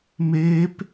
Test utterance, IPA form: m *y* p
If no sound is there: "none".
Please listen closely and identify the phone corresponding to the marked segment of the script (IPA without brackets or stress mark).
e